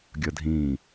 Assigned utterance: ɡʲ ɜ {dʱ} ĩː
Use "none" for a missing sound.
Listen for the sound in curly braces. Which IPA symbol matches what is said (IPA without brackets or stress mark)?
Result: dʱ